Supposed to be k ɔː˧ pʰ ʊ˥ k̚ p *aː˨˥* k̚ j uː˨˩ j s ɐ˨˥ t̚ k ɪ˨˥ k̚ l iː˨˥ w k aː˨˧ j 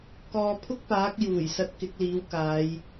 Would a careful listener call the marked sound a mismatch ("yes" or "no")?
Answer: no